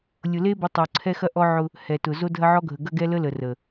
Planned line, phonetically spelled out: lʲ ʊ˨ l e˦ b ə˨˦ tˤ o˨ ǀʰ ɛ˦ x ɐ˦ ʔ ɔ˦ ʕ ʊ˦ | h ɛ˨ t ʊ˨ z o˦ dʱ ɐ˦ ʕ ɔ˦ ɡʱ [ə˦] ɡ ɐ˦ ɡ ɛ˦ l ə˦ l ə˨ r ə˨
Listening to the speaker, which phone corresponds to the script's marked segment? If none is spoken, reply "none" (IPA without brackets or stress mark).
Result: ə˨